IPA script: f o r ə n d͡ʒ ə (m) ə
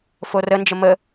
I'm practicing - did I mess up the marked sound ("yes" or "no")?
no